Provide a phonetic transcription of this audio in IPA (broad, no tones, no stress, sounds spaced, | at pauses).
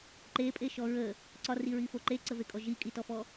ǃ e pʼ e ʃ ɔ ɹ ə | ǀ ɒ r i ɹ i f o ǃ e ǀ ə v e kʼ ɔ ʒ i kʼ i t ɔ f ɔ